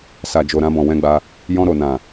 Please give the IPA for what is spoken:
s a˨ d͡ʒ o˨ ɾ ã˧ b ɔ̃˨ w ɛ̃˧ ɡ͡b a˧ | j ɔ̃˧ ɾ o˨ n ã˨

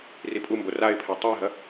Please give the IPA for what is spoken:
r i pʼ u m b o r a ɪ̯ pʰ ɛ tˤ ɛ ɪ̯ ɦ ɐ

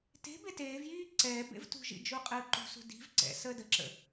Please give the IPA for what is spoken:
t e̤ b e t eː v j iː ǀ ɛː b ḛ v t ṳ ʒ ḭ d͡ʒ u qʼ əː ǃ ṳ s ṳ d i̤ v ǀ ɛ̰ s əː d ə ǁ ə̰

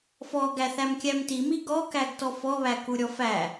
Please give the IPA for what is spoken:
f ɔ ɡ æ θ æ m kʲ æ m t i m i ɡ ɔ k æ ɡ t ɔ f ɔ β æ k u ɾʲ ɔ f æ

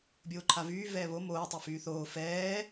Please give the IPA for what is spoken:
bʲ oː ǃʰ a v yː v ɛː β o m oː tˤ y f yː θ oː f ɛː

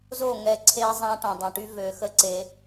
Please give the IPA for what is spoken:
z o˦˨ ŋ ɛ˧ ǀʰ eː˧ zˤ ã˧ ʈ ɔ̃˨ dˤ ɛ̃˨ ʈ y˧ v ø˨˦ x ə˧ ǀ e˧

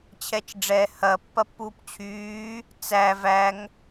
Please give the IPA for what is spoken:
t͡ɕʰ ɛ t͡ʃ ɖ͡ʐ ɛ h ɐː pː ɐ pː uː p t͡ɕʰ yː | t͡s æ v æ ŋ

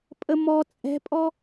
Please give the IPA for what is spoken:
pʼ ə m ɔ t͡sʼ ɛ̤ pʼ ɔ

